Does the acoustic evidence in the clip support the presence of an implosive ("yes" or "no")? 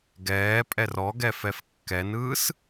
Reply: no